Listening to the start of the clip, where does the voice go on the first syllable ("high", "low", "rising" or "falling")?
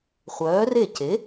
rising